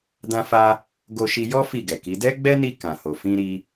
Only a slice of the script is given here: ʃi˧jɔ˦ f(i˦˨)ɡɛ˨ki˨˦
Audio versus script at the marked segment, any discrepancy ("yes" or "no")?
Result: no